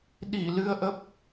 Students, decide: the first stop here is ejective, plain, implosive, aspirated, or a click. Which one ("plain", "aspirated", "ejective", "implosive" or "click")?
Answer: implosive